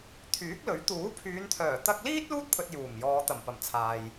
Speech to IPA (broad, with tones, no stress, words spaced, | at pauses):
t̪ʰyː˨˥k̚lɵ˨˥ɥ t̪uː˨˥pʰyː˨˧nt̪ʰœː˨˩ t̪ɐ˧k̚liː˥t̚ luː˥t̚pʰɵ˨t̚ juː˨˩mjɔː˨˧ t̪ɐ˨˩mpɐ˨˩mt͡sʰaː˨j